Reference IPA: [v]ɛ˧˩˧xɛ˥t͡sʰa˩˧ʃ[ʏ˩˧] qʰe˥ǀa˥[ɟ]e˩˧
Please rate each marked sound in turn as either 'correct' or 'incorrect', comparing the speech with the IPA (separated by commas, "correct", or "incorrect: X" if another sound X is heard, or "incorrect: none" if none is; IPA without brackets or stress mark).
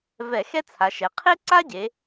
correct, incorrect: ɛ˩˧, correct